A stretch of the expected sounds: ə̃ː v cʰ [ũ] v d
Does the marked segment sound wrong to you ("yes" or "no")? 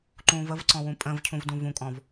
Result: no